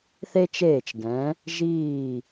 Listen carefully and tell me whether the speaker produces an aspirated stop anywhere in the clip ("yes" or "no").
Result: no